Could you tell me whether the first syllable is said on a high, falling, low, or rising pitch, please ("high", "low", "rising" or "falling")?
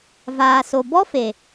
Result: low